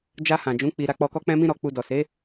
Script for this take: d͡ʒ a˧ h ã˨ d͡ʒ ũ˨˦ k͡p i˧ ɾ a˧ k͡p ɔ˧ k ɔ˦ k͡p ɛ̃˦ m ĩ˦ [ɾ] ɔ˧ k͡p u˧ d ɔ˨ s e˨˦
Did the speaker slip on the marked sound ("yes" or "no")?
no